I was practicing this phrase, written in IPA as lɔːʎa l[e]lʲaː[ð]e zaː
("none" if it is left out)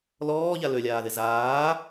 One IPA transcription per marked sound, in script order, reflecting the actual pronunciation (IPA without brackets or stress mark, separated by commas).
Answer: ø, ð